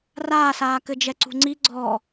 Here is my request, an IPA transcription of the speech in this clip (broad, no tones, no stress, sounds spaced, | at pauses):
r aː s aː k ɘ d͡ʒ ɛ ǀ ṳ ŋ͡ǀ i ɡ͡ǀ ɔ